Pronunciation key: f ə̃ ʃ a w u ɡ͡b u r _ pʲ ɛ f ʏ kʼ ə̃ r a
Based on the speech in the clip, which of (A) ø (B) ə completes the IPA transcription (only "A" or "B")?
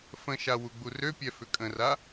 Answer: A